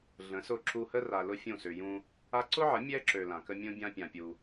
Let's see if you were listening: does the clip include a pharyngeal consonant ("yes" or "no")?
yes